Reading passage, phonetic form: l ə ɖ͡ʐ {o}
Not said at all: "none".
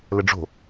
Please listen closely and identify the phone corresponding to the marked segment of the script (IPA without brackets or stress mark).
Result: o̤